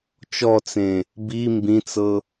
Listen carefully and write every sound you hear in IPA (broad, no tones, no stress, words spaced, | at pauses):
t͡ʃɔt͡sẽ | bi mbĩt͡sɤ